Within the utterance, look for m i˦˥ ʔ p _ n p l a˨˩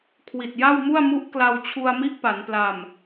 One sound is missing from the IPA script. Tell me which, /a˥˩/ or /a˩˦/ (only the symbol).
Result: a˩˦